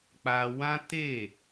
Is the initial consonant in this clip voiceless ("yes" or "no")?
yes